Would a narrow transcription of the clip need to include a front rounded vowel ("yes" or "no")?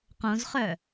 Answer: yes